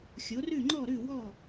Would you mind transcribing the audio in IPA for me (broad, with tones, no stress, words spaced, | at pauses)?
xʲo˩˥rʉ˥˩ ŋ͡ǃɔ˥˩ɾʉ˥˩ wɔ˥˩